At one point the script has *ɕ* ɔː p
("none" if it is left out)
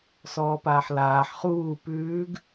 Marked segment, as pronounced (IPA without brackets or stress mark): s